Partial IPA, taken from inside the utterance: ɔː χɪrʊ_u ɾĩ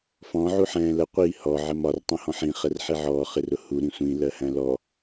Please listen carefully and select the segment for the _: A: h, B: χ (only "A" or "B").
A